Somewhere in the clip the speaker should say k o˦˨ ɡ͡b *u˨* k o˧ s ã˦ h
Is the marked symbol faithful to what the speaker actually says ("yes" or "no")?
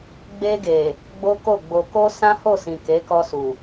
no